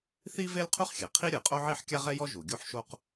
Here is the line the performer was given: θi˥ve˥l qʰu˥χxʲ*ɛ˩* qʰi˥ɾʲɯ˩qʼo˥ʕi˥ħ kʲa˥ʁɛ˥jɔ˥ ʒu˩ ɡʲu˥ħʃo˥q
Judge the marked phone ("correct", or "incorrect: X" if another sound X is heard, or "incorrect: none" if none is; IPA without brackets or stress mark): correct